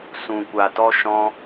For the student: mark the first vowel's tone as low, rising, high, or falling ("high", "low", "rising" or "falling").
low